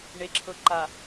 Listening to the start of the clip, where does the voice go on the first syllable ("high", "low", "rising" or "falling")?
low